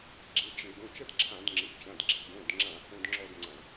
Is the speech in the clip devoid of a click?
no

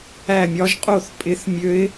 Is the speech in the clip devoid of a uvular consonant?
no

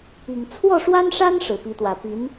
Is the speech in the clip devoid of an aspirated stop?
no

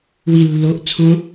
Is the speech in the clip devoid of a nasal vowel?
no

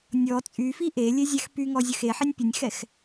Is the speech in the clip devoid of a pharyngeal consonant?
no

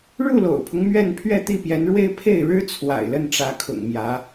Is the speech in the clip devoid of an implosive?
yes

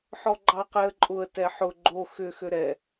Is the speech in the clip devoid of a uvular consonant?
no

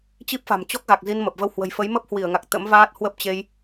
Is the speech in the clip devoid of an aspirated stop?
yes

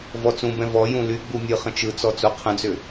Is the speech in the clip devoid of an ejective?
yes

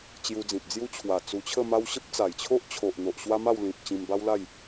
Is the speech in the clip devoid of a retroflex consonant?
yes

